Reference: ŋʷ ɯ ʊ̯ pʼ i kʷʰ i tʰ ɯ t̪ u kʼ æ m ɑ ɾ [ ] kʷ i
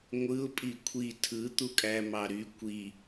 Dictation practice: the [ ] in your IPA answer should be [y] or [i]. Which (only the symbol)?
y